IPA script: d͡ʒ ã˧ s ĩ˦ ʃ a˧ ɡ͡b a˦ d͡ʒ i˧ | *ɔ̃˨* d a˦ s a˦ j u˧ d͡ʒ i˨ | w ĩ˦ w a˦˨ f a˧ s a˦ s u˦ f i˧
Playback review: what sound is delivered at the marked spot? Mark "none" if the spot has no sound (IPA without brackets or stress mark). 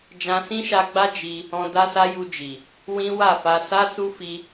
ɔ̃˧